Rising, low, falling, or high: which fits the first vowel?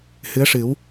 rising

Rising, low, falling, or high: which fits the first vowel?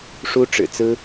high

